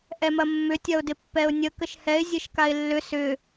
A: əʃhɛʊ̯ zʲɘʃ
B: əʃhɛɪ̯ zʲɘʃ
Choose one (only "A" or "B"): B